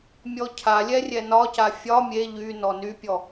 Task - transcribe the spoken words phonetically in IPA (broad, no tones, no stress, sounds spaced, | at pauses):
mʲ ɔ cʰ a lʲ ɛ rʲ ɛ n ɒ c a fʲ ɒ mʲ e ʎ y n ɔ n y pʲ ɔ